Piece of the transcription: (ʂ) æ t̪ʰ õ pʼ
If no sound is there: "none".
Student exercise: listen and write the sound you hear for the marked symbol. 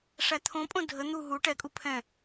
ʂ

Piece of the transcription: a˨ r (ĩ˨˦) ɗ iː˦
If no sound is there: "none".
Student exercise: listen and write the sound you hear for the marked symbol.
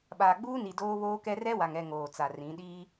ĩ˨˦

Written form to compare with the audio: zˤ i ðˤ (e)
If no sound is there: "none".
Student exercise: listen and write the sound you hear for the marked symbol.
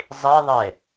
e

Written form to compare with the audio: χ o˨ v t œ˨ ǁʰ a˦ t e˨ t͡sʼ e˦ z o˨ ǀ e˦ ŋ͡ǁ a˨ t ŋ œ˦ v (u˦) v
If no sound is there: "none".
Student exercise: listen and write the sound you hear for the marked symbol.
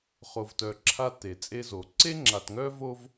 o˦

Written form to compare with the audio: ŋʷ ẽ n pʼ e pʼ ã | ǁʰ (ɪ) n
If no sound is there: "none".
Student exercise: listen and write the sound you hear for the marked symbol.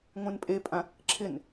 ɪ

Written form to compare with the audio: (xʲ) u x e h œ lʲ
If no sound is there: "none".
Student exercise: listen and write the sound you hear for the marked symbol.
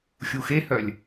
xʲ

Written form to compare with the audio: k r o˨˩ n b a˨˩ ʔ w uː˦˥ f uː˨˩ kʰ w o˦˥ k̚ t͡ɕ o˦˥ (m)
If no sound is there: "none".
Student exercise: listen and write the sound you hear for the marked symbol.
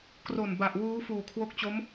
m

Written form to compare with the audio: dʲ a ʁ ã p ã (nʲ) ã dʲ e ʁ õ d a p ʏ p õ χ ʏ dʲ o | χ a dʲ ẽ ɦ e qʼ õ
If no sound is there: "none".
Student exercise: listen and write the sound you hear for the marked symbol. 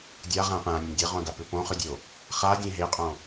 nʲ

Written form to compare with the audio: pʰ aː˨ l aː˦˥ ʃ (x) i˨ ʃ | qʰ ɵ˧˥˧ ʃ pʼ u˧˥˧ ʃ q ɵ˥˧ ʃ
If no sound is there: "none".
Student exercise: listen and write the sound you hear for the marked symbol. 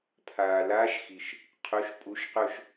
x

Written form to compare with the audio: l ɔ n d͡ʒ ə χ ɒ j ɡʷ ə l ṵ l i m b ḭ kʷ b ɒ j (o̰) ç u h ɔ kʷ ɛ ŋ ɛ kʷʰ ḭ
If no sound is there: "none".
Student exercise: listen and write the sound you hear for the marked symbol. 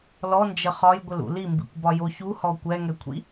o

